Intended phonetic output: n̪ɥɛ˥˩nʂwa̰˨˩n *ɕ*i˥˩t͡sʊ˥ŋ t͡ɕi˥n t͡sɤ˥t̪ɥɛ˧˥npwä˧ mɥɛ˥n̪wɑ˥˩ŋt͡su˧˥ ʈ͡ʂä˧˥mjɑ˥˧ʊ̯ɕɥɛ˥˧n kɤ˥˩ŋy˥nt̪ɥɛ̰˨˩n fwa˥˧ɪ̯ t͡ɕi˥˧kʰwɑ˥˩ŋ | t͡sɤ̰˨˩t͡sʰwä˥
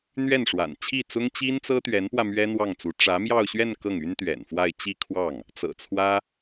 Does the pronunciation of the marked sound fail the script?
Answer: yes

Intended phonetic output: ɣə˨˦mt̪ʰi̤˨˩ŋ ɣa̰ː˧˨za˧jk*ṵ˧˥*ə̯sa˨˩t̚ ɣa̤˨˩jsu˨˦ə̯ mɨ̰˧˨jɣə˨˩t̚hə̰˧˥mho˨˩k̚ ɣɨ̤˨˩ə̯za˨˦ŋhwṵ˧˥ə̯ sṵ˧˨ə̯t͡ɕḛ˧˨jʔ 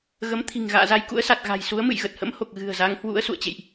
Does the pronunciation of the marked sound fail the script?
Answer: no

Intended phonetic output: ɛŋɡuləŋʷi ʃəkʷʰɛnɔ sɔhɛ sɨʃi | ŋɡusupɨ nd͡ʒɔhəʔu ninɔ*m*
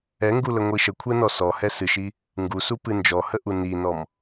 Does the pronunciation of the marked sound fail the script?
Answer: no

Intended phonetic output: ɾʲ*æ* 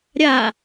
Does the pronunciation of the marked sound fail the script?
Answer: yes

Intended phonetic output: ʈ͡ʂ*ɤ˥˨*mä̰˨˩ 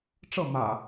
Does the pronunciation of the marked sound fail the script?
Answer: no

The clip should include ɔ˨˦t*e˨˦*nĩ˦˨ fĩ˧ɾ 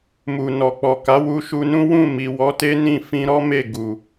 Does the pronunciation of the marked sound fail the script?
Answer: yes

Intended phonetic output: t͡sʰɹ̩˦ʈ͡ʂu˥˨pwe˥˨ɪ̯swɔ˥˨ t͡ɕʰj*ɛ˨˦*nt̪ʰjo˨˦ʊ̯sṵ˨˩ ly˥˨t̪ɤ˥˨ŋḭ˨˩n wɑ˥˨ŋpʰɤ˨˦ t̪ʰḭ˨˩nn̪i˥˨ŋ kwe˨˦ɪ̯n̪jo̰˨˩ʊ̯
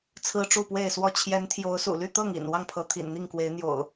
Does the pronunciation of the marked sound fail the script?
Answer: no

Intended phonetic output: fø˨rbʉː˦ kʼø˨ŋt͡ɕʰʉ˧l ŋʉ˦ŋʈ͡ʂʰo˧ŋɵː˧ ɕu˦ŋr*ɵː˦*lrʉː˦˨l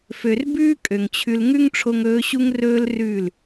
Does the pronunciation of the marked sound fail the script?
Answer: no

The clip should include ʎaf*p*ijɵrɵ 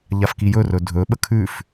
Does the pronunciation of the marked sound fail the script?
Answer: yes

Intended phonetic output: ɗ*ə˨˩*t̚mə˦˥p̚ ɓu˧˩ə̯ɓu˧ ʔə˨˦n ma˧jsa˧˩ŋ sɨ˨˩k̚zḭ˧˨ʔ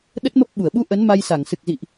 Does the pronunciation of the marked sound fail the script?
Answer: yes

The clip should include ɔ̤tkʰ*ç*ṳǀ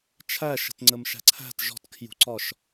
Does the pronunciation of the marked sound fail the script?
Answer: yes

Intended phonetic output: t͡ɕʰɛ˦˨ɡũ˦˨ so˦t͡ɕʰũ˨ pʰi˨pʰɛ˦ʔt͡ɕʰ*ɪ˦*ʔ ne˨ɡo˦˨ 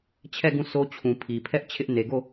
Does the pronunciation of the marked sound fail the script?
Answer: no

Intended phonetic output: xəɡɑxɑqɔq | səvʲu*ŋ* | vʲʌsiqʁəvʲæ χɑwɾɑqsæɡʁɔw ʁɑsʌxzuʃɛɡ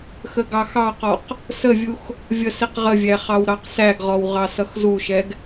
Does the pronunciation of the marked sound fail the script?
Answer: yes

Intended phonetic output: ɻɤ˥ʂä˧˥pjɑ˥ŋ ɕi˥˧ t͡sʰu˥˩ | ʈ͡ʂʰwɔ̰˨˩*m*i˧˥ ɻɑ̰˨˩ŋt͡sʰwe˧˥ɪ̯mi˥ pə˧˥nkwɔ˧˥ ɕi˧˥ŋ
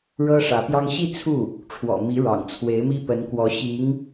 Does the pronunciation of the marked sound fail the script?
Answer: no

